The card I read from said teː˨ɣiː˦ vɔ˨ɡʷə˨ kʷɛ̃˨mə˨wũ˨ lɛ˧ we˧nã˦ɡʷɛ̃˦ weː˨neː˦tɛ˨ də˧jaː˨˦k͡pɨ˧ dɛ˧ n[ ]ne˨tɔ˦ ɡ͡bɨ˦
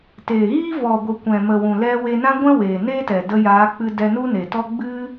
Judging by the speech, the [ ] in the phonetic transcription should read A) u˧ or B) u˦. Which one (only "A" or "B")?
B